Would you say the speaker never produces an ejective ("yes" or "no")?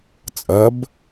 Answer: no